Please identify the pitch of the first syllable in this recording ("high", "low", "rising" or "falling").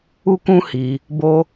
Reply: high